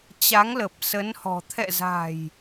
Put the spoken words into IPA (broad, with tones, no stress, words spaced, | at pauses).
t͡ɕa˨˦ŋlə˨˩p̚ sə˨˦nhɔ̤˨˩ t̪ʰɛ̰˧˨za̤˨˩j